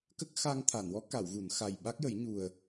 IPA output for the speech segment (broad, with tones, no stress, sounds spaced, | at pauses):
k ə˦˥ k̚ x a˧ ŋ t̪ʰ a˨˩˨ n w ɔ˧˥ k a˨˩˨ w ɣ u˨˩˨ n x a˨˩ j ɓ a˦˥ k̚ j ə˨˩˦ j ɲ u˨˩ ə̯